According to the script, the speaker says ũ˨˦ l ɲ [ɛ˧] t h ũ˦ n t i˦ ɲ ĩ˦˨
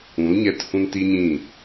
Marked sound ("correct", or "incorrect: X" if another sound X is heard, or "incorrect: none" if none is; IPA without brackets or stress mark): correct